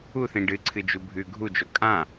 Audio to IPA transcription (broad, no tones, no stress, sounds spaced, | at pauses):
u θ ĩ ɖ ɨ ǀʰ ɨ d͡ʒ u bʱ ʉ ɡʱ u d͡ʒ o kʼ ã